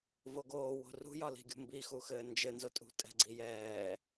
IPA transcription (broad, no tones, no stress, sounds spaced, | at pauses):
v o ɡ oː w o̤ r ṳ j ɒ l i̤ ɡʲ ṳ m b i x u x ɘː n d͡ʒ ɘ n z o tʼ ṳ tʼ ɛ̤ ɡ͡ǀ i j ɛː